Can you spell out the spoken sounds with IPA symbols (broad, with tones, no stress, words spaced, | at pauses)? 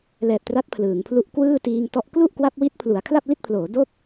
lɛː˨˩p̚tra˦˥t̚ pʰlɯː˩˦ŋpʰlu˥˩ʔ kwɯː˥˩ tiː˧ŋtɔ˦˥ʔ klu˥˩ʔkwa˦˥p̚wi˦˥t̚ pʰlu˩˦a̯kʰla˥˩p̚li˥˩t̚pʰloː˩˦ do˥˩k̚